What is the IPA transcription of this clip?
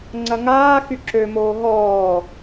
ŋ͡ǀɐŋaː xyǁømoː ɦɔː

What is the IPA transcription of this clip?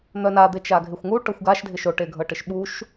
n̪œnad̪e t͡ʃaɡʱɪxʷŋu ʈɤxʷɡaʃdʱɪ ʃoʈeɡʱɤʈɪʃ ɓuʃ

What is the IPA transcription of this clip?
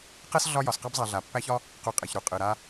qɛ˥s ɮɒ˦jɒ˩sqa˦bzˤa˨ ɮa˩pːæ˦çɒ˥ | qu˨qʼe˩çɾu˩ qʼɯ˩ɾa˦

